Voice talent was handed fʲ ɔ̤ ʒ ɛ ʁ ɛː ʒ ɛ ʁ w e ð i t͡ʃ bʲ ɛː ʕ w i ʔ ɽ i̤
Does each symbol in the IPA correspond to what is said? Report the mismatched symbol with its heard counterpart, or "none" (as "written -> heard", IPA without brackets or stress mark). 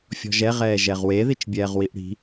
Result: ʕ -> ʁ